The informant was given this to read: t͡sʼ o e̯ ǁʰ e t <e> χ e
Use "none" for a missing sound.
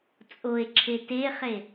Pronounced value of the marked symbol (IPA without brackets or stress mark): e